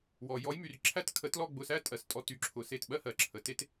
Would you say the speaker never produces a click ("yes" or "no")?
no